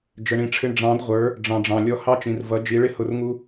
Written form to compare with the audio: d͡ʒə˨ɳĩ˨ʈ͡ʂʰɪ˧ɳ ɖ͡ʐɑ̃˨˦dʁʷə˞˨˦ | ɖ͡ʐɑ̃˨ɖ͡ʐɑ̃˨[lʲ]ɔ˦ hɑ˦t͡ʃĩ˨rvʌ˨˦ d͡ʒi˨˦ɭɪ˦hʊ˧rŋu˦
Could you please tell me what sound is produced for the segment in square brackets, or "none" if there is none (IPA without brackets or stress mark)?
lʲ